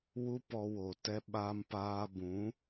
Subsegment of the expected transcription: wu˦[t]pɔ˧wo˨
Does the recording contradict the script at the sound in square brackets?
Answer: yes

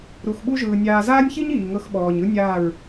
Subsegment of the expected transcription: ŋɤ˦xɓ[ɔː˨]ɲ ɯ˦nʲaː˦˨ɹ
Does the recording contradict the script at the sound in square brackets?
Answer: no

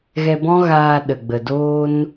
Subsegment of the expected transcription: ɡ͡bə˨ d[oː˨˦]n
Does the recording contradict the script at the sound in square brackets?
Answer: yes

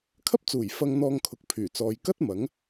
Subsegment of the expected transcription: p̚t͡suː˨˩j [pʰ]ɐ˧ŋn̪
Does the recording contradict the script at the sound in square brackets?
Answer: yes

